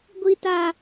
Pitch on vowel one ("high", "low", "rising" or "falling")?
high